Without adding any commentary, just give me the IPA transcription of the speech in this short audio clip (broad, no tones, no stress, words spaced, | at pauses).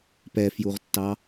pɛfjuʁtːɑ